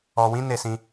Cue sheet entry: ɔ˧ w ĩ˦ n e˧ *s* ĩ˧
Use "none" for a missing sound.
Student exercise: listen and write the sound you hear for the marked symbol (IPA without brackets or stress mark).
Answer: s